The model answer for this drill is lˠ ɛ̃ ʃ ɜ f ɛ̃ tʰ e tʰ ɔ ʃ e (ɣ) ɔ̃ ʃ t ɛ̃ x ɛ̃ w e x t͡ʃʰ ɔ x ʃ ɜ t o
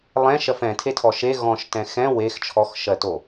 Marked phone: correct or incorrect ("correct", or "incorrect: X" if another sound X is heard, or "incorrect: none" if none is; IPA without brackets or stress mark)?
correct